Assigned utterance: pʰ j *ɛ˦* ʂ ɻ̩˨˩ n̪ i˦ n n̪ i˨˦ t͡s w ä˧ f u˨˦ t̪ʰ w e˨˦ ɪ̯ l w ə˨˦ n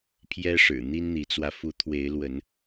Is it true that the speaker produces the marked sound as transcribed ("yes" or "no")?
yes